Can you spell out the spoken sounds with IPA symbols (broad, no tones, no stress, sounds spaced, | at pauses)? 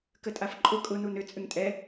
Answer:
k ə tʼ a f ǃʼ ʊ kʼ ʊ n u n ʏ t͡sʼ ʏ ŋ tʼ ɛ